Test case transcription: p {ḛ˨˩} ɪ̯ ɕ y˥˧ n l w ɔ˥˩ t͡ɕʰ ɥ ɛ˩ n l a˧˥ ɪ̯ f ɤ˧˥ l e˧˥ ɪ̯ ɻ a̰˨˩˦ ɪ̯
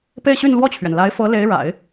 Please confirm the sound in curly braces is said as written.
no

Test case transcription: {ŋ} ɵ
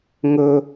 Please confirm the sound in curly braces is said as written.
yes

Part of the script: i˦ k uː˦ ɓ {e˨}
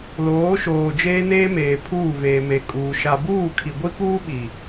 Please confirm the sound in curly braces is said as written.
no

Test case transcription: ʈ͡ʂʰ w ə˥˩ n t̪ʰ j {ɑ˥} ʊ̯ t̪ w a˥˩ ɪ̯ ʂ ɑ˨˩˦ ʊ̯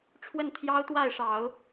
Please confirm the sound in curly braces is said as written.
yes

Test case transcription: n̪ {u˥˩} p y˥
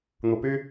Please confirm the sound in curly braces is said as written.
no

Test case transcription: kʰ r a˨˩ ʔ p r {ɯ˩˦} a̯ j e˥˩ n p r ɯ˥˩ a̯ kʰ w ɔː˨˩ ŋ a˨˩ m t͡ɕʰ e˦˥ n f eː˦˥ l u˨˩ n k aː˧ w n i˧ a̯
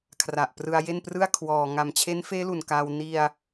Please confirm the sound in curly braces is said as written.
no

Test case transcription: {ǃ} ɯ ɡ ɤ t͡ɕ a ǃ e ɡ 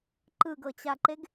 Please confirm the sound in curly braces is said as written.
yes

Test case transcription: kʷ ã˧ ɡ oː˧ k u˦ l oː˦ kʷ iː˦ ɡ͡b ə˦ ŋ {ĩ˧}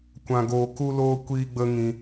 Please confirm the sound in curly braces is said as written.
yes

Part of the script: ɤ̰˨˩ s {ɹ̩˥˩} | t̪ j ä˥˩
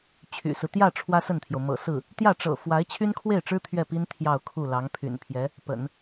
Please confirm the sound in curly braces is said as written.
yes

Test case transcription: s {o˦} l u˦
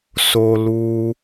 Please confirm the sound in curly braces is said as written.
yes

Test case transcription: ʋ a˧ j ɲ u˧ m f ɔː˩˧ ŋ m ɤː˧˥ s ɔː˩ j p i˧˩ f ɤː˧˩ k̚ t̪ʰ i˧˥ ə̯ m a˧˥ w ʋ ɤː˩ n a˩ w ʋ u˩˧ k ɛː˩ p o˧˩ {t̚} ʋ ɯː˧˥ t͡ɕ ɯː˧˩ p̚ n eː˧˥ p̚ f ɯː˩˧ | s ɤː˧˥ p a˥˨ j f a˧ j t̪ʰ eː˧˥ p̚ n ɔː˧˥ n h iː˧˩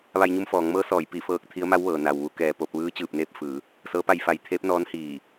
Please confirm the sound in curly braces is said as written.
no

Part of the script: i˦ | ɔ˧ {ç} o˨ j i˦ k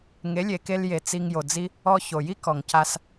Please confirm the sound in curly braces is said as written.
yes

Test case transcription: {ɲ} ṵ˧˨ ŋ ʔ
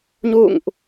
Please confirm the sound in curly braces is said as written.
yes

